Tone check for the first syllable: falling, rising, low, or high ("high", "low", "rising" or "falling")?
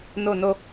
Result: falling